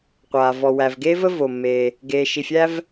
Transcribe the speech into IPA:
qʷ aː˩ v ɔ˩ w æ˩ v ɡ eː˥ v ə˥ v o˩ mː e˩ | ɡ eː˩ ʃ i˩ fʲ æ˥ v

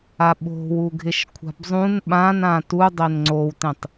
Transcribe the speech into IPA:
a ɓ o̤ w u ɡʱ ɪ ʃ kʷʰ a̤ b zˤ ũ n ɓ ã n ã t u dˤ e n ŋ͡ǀ o w t ẽ tˤ

